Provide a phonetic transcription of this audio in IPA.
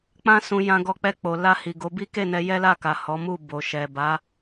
k͡p ã˧ s ũ˨ j ã˧ ɡ ɔ˧ k͡p ɛ˧ k͡p o˨ l a˧ h i˨ ɡ o˨˦ b i˦ k e˦˨ n ɛ˧ j ɛ˦ l a˦˨ k a˨ h ɔ˨˦ m u˦˨ b o˨ ʃ ɛ˨ b a˨˦

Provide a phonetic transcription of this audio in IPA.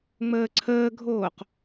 ŋ͡m əː ǀʰ əː ɡʱ oː q

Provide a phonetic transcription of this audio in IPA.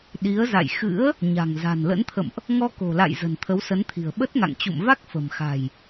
ɗ i˨˦ ə̯ z a̰˧˨ j x ɨ̰˧˥ ə̯ | ɲ a̤˨˩ ŋ z a̤˨˩ n l ə̰˧˥ n t̪ʰ ə̰˧˨ m ʔ | ŋ ɔ˧ k o̤˨˩ l a̰˧˨ j z ə̤˨˩ n t̪ʰ ə˨˦ w s ə˨˦ n t̪ʰ i̤˨˩ ə̯ ɓ ə˦˥ t̚ ŋ a̰˧˨ ŋ t͡ɕ ṵ˧˨ m v a˦˥ k̚ f ə̤˨˩ m x a̤˨˩ j

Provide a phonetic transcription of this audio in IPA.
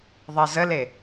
ðˤ e z ə l e

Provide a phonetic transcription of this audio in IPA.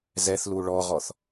z ɛ θ l u ɭ ɔ ʁ ɔ θ

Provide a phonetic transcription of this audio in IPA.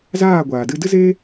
z aː˦˨ ɡʷ aː˨ d ɨ˧ d ɨ˦ z eː˦

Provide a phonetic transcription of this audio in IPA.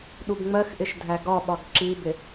ɗ u b ŋ͡m ɜ x ʔ ɪ ʃ dʱ æ ɡ ɒ ɓ ɒ ɡ ǁ i b ɪ

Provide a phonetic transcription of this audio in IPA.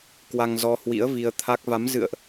k w a˧ ŋ z ɔ˧ h w ḭ˧˥ ə̯ v i˧ ə̯ t̪ʰ a˦˥ k̚ v a˨˦ m z ɨ̰˧˨ ə̯ ʔ

